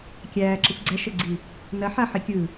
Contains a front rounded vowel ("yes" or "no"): no